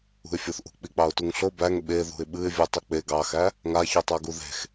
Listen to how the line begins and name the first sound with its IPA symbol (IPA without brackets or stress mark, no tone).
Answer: ṳ